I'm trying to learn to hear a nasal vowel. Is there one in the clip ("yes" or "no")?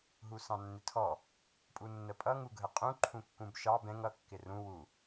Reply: yes